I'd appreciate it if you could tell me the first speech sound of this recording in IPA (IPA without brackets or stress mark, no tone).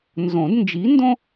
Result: n